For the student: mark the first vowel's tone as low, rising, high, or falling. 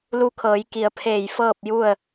rising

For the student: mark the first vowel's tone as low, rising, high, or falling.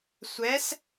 rising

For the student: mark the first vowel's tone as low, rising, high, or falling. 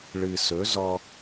low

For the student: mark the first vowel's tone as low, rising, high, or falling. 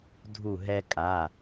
falling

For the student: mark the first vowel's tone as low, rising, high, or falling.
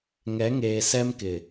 rising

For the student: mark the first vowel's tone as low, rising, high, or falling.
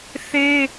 high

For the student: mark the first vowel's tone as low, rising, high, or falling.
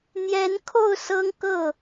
rising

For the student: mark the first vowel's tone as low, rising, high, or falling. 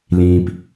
low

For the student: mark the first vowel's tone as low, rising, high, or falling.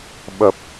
low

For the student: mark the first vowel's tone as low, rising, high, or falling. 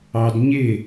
high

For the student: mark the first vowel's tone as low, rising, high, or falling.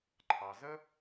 low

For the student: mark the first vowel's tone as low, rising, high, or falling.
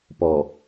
low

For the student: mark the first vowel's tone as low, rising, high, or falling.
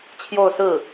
falling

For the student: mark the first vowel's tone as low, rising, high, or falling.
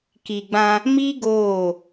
low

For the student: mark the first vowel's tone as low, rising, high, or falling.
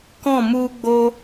falling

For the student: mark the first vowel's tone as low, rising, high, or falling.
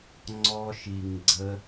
high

